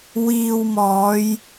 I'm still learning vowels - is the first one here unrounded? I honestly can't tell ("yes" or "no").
yes